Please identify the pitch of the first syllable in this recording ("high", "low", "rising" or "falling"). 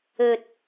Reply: low